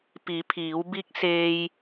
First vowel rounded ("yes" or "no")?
no